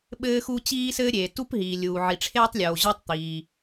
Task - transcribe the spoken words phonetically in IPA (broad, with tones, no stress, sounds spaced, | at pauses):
ɓ ɘː˥ x u˥ t͡ɕ iː˥ s ɘː˥ ɾʲ eː˩ t u˥ p ɦ iː˩ lʲ uː˩ ʕ i˩ ʈ͡ʂʰ eː˥ tˤ lʲ oː˩ ʑ o˥ tˤ t̪ iː˩